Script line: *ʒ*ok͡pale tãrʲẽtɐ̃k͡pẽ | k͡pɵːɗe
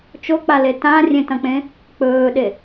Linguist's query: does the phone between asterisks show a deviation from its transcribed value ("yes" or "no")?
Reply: yes